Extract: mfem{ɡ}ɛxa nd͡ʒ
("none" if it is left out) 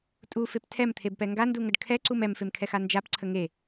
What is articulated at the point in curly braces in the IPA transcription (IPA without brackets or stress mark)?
kʰ